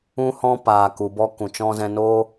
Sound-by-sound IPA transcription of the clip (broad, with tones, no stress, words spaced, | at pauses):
ũ˧hɔ̃˧ paː˨ku˨bɔ˧ kũ˨t͡ʃɔ̃˧zɛ̃˧no˦